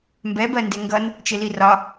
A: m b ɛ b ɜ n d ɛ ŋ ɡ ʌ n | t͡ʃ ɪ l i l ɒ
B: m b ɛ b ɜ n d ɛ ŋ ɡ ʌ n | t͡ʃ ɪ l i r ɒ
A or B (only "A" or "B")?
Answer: B